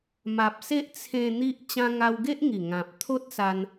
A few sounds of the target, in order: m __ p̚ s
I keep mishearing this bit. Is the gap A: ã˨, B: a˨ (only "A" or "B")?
B